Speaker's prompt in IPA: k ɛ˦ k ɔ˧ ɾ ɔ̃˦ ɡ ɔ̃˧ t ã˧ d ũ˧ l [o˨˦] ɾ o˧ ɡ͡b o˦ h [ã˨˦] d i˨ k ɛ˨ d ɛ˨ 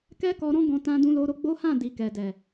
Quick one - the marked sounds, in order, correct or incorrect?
incorrect: o˧, incorrect: ã˦˨

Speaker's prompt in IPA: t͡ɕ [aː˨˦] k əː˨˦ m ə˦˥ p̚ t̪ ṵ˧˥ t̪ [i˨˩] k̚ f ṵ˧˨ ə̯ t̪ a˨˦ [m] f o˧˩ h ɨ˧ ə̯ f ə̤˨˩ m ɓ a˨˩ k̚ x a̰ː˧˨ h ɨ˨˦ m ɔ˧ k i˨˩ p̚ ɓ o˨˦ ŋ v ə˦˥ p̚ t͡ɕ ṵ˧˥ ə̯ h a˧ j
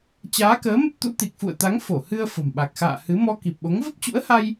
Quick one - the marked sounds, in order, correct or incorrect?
correct, correct, incorrect: ŋ

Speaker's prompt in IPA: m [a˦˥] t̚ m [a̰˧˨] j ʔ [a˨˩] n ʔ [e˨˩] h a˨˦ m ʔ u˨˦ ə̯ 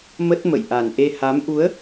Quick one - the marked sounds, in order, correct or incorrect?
incorrect: ə˦˥, incorrect: ə̰˧˨, correct, incorrect: e˧

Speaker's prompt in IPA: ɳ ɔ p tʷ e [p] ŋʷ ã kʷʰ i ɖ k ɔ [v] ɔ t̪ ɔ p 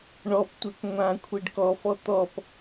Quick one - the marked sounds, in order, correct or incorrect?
incorrect: k, incorrect: f

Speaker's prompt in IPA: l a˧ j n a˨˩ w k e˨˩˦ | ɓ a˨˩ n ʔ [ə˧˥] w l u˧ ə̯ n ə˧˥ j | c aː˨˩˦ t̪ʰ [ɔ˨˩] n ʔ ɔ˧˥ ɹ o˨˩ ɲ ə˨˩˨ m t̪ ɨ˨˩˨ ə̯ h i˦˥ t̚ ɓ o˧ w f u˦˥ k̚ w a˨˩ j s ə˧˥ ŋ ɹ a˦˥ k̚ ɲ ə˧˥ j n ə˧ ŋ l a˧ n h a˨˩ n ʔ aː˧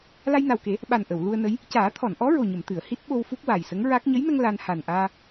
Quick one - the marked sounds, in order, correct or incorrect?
incorrect: ə˨˩˨, incorrect: ɔ˨˩˨

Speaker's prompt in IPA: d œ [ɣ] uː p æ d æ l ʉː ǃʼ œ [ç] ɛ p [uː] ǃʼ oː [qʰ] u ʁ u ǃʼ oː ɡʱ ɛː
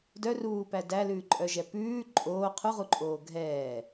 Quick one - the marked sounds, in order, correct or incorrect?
incorrect: r, incorrect: ʒ, incorrect: ʉː, correct

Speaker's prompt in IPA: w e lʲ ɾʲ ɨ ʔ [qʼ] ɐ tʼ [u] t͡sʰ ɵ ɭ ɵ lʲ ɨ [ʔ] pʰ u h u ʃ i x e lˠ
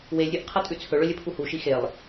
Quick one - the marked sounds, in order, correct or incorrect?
incorrect: qʰ, incorrect: ʉ, incorrect: none

